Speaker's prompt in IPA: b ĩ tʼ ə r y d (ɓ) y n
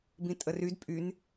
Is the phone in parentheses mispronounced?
yes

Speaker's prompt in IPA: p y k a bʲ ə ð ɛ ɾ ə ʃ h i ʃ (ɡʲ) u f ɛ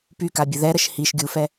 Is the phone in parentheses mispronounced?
no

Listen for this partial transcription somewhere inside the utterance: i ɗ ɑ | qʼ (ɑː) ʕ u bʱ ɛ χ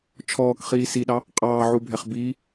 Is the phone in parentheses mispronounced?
no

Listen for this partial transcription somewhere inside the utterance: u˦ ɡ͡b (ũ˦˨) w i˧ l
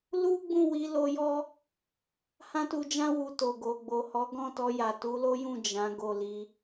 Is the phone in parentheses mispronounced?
no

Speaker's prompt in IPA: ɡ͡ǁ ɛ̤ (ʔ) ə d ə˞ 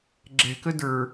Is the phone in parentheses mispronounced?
yes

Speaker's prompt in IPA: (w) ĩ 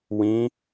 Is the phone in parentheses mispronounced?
no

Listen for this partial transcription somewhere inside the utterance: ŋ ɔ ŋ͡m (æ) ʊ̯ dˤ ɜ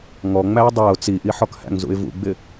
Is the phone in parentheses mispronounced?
no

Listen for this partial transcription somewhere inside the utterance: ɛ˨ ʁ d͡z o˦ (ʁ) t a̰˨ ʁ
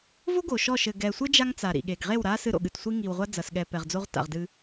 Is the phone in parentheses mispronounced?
no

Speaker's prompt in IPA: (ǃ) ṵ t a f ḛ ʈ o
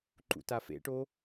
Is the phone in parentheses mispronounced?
no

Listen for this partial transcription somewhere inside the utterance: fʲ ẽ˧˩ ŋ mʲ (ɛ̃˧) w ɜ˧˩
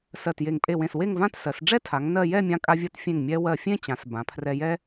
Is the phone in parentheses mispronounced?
yes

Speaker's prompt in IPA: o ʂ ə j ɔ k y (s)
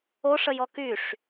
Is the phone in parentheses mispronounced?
yes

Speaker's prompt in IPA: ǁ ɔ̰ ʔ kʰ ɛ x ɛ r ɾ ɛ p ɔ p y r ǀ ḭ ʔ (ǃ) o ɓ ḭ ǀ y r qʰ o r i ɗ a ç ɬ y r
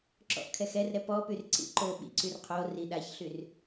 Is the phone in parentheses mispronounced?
no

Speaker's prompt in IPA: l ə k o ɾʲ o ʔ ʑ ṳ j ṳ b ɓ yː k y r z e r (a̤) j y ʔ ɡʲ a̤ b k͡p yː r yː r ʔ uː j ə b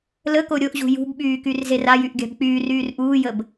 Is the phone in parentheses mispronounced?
yes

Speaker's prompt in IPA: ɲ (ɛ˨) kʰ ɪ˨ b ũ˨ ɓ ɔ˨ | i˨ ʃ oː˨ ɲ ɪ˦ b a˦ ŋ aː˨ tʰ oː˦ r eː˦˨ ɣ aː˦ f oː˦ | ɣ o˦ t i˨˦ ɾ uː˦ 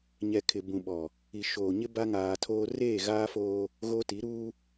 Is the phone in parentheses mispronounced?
no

